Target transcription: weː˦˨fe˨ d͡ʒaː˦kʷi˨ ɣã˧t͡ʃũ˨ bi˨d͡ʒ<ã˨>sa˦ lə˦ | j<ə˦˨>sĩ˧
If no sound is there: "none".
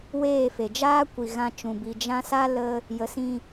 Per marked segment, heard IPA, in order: ã˧, ə˨˦

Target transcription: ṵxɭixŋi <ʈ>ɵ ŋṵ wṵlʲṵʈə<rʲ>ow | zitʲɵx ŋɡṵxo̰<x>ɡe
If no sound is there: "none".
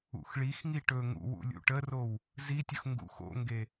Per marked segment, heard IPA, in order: ʈ, r, ŋ

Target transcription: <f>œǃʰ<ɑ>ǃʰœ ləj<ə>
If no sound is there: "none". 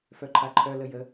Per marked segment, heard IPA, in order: f, a, ə

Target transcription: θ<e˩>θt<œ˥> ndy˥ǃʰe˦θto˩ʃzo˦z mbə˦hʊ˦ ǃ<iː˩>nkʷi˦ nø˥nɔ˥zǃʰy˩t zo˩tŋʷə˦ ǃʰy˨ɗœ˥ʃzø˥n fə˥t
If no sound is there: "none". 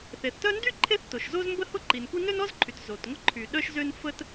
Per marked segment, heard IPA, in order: e˩, œ˥, i˩

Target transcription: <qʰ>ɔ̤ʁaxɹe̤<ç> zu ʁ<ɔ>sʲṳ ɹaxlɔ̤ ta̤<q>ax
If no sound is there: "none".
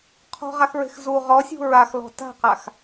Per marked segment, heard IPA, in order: qʰ, x, ɔ, q

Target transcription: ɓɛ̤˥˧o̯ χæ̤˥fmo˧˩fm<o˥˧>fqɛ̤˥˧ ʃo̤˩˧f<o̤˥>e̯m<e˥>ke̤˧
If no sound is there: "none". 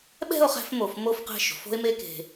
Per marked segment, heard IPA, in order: o˥˧, o̤˥, e˥

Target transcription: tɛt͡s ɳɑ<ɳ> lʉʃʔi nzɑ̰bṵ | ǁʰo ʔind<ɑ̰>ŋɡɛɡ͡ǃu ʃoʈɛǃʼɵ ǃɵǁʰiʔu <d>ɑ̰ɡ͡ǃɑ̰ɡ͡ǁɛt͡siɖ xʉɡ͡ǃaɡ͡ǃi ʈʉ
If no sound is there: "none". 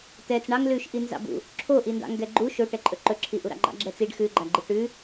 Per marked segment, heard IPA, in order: ŋ, ɑ̰, ɾ

